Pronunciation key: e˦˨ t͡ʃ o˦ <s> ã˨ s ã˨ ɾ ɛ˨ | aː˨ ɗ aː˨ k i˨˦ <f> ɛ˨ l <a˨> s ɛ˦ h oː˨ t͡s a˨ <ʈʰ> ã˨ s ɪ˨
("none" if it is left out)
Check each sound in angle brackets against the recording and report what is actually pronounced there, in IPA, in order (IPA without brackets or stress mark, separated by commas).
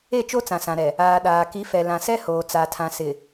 t͡s, f, ã˨, tʰ